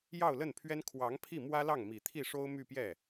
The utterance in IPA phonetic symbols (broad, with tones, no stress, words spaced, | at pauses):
jɑ˥˧ʊ̯lə˥˩npʰɥɛ˥n kʰwɑ˧˥ŋpʰi˥˩mwä˥ lɑ˥˩ŋmi˨˩ t̪ʰi˥˩ʂo˥ʊ̯ my˥˧pjɛ˥˩